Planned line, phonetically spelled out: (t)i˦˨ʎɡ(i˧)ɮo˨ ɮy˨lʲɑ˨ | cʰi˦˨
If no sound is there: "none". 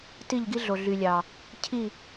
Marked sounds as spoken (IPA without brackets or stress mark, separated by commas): t, i˦